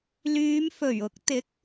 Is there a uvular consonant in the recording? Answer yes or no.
no